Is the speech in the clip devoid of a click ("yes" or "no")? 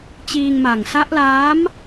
yes